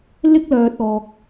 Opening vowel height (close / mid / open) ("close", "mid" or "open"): close